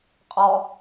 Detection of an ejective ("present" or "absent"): present